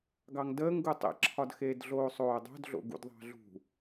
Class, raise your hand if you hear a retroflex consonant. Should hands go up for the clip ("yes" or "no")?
no